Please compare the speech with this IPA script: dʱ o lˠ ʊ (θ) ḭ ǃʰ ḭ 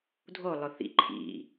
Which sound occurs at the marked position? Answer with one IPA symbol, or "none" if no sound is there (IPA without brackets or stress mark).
θ